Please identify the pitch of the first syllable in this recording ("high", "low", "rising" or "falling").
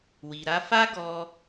low